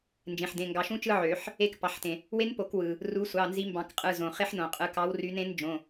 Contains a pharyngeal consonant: yes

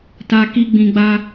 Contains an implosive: no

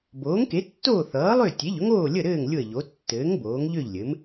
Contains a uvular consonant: no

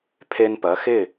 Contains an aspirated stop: yes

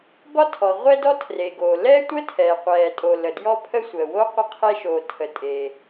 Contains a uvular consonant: yes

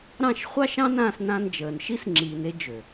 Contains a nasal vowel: yes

